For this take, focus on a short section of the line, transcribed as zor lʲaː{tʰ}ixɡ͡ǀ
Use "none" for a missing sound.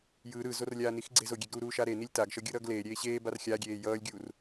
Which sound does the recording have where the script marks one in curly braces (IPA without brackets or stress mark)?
n